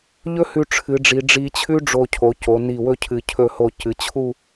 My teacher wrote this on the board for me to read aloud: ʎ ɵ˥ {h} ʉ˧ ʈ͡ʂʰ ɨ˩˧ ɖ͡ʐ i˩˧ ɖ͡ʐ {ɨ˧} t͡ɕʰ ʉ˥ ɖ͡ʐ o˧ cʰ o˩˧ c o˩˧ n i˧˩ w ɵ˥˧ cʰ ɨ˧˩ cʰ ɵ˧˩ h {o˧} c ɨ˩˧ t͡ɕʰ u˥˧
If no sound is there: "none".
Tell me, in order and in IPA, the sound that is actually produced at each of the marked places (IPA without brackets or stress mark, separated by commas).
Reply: h, i˧, o˧˩